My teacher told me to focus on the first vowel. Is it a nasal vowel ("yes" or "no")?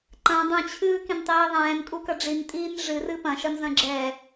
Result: yes